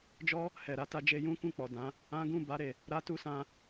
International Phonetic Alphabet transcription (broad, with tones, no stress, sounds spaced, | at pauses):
d͡ʒ ɔ˦ | h ɛ˨ ɾ a˧ t a˧ d͡ʒ e˧ j ũ˦ k ũ˦˨ k͡p ɔ˨ d ã˨˦ | ã˦ ɡ ũ˦˨ b a˧ ɾ e˨ | ɾ a˦ t u˦ s ã˧